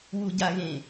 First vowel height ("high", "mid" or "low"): high